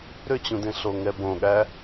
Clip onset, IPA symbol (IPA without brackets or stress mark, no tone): ɾ